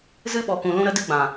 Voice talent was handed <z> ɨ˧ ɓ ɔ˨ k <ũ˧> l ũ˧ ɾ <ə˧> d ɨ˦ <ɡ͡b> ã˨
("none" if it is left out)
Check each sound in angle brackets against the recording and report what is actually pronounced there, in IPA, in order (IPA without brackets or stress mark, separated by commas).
z, ũ˨, ə˧, ɡ͡b